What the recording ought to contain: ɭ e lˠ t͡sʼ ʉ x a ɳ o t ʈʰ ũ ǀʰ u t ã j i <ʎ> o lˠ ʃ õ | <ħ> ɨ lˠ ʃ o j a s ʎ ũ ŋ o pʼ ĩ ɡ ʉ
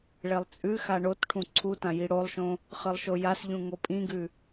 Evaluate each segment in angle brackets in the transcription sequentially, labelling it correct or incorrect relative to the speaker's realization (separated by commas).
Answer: incorrect, incorrect